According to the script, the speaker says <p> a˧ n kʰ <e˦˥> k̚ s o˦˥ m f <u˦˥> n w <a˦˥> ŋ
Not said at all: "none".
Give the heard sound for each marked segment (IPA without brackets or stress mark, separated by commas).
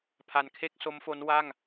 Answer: pʰ, e˥˩, o˦˥, a˥˩